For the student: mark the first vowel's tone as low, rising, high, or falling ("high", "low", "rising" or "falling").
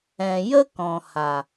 low